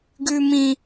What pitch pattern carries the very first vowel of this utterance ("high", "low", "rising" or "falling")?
high